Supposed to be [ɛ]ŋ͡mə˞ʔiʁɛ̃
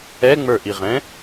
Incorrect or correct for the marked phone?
correct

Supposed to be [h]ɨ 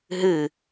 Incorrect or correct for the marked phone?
incorrect: ɦ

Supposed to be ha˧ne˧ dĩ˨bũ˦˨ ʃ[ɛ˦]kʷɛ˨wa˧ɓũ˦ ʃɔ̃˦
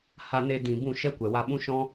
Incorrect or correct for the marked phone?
correct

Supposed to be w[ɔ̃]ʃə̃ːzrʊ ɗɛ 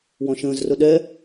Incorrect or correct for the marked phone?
correct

